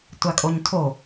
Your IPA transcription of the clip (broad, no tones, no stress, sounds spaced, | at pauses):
tʷ a kʼ o ɲ tʰ o